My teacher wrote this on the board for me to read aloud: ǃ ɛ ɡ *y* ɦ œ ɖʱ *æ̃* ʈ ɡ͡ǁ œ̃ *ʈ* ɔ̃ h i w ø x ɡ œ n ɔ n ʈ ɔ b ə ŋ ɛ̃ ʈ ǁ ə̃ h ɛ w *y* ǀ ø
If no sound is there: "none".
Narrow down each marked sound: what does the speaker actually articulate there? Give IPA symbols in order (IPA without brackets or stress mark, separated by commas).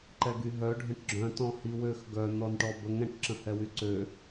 y, ə̃, t, y